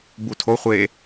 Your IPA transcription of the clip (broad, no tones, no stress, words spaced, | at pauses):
butʰo χʷe